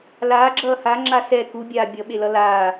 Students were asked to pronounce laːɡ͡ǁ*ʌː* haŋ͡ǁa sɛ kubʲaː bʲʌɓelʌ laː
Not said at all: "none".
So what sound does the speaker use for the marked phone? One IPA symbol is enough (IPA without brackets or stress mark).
ʌː